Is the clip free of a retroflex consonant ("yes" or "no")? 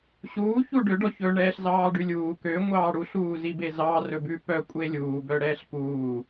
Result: no